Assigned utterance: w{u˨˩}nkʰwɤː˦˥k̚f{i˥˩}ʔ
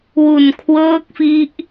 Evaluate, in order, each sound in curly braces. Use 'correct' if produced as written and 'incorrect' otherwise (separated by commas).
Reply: correct, incorrect